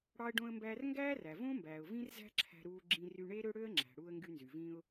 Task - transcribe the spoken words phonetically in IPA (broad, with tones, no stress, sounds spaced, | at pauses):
ɽ ɑː˧ ə̯ ɖ õː˧ ə̯ m b æː˧ r ŋ ɡ æː˥ r æ˩ v õː˥ m b æː˩ ʊ̯ v ĩ˥ r z æ̤˥ ǁʰ æ̤˧ ɾ uː˧ ɡ͡ǁ ĩ˧ r y˧ ɳ e˥ ɾ ø˥ ɽ ø˥ ə̯ ŋ͡ǁ æ̤˩ ɽ uː˧ ə̯ ŋ ɡ y˧ n z y˩ v ĩ˧ ʊ̯